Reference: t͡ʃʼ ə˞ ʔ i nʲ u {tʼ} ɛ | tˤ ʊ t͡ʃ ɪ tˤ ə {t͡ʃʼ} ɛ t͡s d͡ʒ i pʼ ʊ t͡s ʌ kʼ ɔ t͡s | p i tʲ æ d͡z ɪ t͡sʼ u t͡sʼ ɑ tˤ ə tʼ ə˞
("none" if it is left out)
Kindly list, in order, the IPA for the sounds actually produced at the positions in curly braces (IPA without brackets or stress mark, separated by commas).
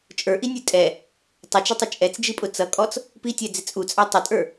tʼ, t͡ʃʼ